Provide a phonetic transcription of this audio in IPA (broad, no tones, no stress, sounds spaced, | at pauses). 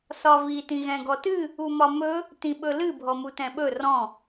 s ɒ v i t ĩ ɣ ɛ̃ ɡ ɔ t ɨ | u m ɒ m ɵ | t ĩ ɓ ɵ l ɨ bʱ ɔ m u t ɛ̃ ɓ ɵ r ɔ̃